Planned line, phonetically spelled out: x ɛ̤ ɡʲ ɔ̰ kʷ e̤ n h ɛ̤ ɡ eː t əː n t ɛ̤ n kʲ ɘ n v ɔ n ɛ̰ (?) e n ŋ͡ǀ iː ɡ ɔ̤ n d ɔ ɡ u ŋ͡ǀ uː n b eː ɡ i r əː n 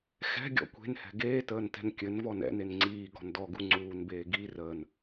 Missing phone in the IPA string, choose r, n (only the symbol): n